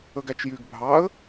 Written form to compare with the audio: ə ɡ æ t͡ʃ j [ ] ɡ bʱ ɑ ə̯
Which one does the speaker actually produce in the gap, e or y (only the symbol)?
y